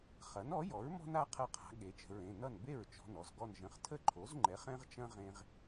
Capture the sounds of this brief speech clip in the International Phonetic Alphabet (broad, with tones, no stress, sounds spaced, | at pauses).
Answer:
χ ɐ˩˥ n ɔ˩˥ j ɔ˩˥ ɹ m ɔ̤˦ n a˦ qʰ ɐ˥˩ qʰ a̤˩˥ ɠ e˩˥ t͡ʃ ə̤˩˧˩ ɹ ẽ˩˧˩ n ʌ˥˩ n b e˥˩ ɹ t͡ʃ ɔ̤˩˧˩ n ɔ˧˩ z ɡ ɔ˧˩ n ʒ ə̃˩˧˩ χ tʰ ə˥˩ ǃʰ o˩˥ z ŋ͡ǃ ɛ˩˥ χ ɛ̃˦ ʁ t͡ʃ ɐ̃˦ ʁ ẽ˦ ʁ